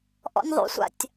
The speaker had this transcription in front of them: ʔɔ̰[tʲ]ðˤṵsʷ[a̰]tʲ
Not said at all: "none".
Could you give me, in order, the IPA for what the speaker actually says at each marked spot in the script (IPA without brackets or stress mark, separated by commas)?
nʲ, a̰